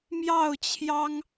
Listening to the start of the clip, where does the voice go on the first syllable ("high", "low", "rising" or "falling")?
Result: falling